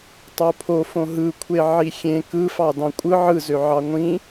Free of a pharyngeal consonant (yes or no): no